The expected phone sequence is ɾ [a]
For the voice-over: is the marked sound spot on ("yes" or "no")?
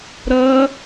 no